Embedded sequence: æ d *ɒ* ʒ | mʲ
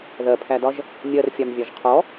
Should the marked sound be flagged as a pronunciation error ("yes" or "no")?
no